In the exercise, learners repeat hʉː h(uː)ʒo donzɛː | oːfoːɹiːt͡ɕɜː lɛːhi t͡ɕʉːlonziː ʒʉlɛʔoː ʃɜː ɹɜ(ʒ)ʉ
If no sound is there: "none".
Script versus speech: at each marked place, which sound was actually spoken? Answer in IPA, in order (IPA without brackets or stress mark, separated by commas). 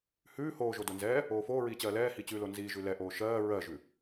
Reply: oː, ʒ